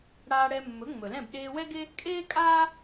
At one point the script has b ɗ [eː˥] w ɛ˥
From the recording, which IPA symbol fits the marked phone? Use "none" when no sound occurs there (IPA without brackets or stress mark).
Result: eː˧